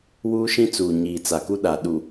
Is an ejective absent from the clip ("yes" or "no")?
yes